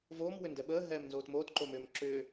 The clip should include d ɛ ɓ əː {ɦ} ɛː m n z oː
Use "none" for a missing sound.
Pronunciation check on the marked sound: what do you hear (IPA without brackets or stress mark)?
ɦ